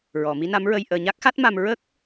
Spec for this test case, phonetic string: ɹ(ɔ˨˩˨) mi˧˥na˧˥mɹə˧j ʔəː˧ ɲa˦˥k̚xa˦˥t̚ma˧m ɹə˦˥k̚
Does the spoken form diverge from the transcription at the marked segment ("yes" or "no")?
no